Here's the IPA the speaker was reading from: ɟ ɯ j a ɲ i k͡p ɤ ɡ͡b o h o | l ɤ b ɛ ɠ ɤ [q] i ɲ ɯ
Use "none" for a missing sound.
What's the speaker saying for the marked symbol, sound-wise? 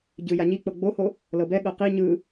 q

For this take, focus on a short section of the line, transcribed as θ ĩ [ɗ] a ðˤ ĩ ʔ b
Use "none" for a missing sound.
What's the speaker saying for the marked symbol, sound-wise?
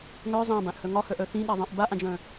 ɗ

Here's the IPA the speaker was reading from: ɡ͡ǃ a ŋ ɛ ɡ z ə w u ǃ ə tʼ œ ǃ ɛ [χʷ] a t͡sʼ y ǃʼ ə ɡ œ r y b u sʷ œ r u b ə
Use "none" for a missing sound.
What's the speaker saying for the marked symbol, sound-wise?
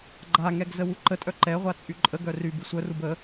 ʁʷ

